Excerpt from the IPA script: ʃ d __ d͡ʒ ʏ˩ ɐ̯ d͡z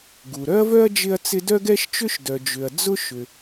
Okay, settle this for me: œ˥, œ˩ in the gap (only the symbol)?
œ˩